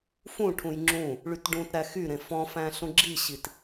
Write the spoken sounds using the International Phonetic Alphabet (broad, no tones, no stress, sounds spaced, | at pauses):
f ũ ʈʰ ũ j ŋ͡ǁ ũ | ɭ y t ɖ ũ t ɾ æ x y ɾ ẽ f ɔ̃ f æ̃ ɬ ũ ɡ͡ǁ i ɕ i t